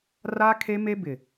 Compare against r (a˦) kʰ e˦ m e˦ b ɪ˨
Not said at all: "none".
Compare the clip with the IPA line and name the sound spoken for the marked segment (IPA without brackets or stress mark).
a˦